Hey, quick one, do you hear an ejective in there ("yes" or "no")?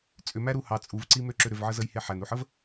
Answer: yes